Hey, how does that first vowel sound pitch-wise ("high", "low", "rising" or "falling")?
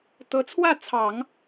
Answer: rising